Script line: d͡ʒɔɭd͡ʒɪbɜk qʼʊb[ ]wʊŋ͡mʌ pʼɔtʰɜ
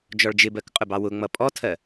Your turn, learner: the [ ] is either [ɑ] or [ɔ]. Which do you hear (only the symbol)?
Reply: ɑ